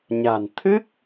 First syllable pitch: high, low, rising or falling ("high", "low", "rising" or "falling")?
low